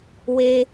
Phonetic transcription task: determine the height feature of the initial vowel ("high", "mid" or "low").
mid